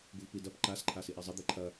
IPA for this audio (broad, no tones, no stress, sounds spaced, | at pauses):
ɡ u v p i d ɐ p ǃ a s ǃʰ a s i ʔ e zˤ i d̪ e ǃʰ ɐ